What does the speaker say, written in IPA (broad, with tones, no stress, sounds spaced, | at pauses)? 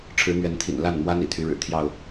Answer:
ʈ͡ʂʰ ɻ̩˨˦ n̪ ɥ ɛ˨˦ n t̪ʰ ḭ˨˩ n l a˥˨ n m w a˦ n ḭ˨˩ t̪ʰ y˨˦ ɻ ɻ̩˨˩ t̪ʰ j ɑ˥˨ ʊ̯